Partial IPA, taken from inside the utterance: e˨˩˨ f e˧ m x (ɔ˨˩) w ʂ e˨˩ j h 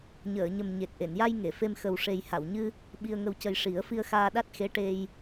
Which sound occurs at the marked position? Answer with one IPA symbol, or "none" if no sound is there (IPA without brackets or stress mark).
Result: ə˨˩